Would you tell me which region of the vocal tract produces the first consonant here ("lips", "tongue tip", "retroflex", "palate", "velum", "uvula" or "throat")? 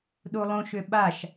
tongue tip